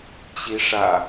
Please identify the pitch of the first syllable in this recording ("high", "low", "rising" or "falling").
rising